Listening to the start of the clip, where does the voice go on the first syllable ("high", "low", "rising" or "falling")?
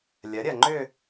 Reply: rising